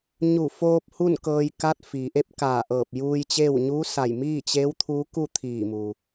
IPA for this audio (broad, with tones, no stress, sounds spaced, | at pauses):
ɲ u˧˩ f oː˧ p̚ h u˥˨ n k ɤː˧ j k a˧˥ t̚ f iː˩ ʔ e˥˨ p̚ k aː˧˩ ʔ ɤː˧˩ p̚ j uː˧ j t͡ɕ eː˥˨ w ɲ uː˧˥ s a˧˩ j m iː˥˨ t͡ɕ eː˧˥ w t̪ʰ uː˧˥ k u˥˨ t̪ʰ iː˧˩ m u˩